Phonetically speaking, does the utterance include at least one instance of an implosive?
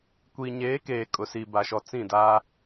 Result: no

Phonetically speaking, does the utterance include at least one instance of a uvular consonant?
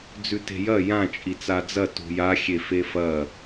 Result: no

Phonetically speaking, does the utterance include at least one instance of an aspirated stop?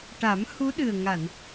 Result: no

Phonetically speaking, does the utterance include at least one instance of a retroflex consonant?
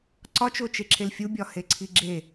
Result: no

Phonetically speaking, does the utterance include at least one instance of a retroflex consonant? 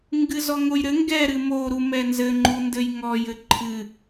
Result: no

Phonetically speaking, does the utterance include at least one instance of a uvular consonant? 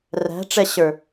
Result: no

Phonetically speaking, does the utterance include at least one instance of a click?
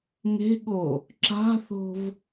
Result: yes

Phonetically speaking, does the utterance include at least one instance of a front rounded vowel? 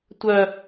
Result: yes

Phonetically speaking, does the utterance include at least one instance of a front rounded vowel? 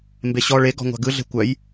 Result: yes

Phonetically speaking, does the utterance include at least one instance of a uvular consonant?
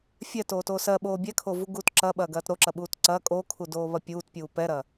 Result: no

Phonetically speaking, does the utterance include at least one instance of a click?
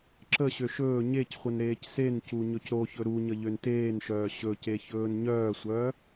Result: yes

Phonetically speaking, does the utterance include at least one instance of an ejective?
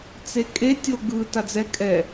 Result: yes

